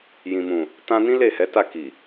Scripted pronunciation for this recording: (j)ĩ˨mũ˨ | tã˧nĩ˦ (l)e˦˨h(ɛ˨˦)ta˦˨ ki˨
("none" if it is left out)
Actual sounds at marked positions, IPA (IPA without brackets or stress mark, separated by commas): j, l, ɛ˨˦